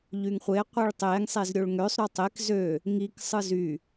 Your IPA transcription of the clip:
ʎyŋχʷe qʷiɭtˤeŋ sˤezɾʲoɭŋøsˤ ɾytˤek zø | ŋik sˤɯzy

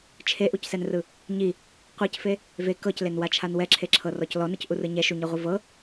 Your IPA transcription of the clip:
t͡ʃʰeʔucsɛnrɯ | ɲi | qʷɤcfe | ve kɤclenwat͡ʃʰan wɛǁʰeǁʰɤrɔc lɔnɯcʔurɯ ɲɛʃuɲɤʁʷɯ vɤ

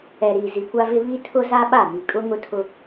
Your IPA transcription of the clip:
ɛ˨ɾiː˨ zi˨kʷa˦vɪ˦ βi˦tʰʊ˦za˦ɓa˦˨ mi˨kʼʊ˦ŋʊ˦tʰʊ˦

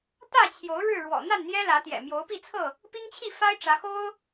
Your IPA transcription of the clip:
t̪ä˥˨t͡ɕʰjo˨˦ʊ̯ ɻɻ̩˥˨ɻwɔ̰˨˩ n̪a˥˨nn̪jɛ˦lä˨˦t̪jɛ̰˨˩ mjo˨˦ʊ̯pi˥˨t͡sʰɤ˥˨ | pi˦ŋt͡ɕʰi˥˨fa˦ɪ̯ ʈ͡ʂä˨˦xo˦ʊ̯

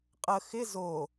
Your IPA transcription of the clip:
qʼə xɪ zo

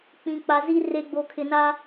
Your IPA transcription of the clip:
k͡pĩ˨ k͡pa˨ zi˦ re˨ɡ͡bo˨kʰɪ˨na˦

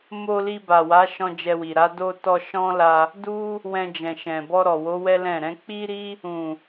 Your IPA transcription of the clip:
mo˧li˧ba˨ wa˨˦ʃɔ̃˧ d͡ʒɛ˧wi˨ ɾa˧ do˧tɔ˧ ʃɔ̃˦la˧ | du˦ | wɛ̃˧d͡ʒɛ̃˨ʃɛ̃˨ bɔ˧ ɾɔ˨wo˨˦ wɛ˦lɛ̃˦˨ ɾɛ̃˧k͡pi˦ɾi˦ | ũ˨

